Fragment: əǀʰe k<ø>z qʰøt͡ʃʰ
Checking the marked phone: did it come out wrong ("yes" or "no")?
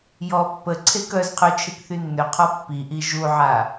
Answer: yes